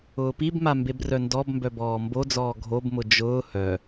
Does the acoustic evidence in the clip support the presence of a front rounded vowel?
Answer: yes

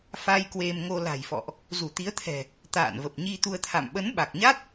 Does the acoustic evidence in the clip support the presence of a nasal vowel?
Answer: no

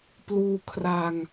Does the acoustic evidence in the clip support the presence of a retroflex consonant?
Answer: no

